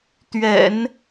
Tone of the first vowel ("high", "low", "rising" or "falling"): low